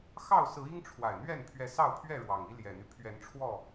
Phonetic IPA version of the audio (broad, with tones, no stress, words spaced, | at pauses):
xɑ˥˨ʊ̯sɹ̩˨˦ i˦ŋʈ͡ʂʰwa˨˩ɪ̯n̪ɥɛ˥˨n pʰɥɛ˨˦sɑ˥˨ʊ̯pʰɥɛ˥˨ ɻwɑ˨˩ŋi˦ ljɛ˨˩n̪y˦ pʰɥɛ˨˦nʈ͡ʂʰwɔ˥˨